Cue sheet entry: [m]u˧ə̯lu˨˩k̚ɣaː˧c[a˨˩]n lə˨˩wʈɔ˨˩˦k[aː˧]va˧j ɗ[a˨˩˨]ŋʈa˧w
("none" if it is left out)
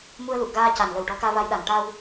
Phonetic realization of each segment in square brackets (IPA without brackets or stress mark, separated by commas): m, a˨˩, aː˧, a˨˩